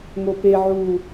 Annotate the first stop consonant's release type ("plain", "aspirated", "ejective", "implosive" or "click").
plain